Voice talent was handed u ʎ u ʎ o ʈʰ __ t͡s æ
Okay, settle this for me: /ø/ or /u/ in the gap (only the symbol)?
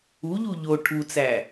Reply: u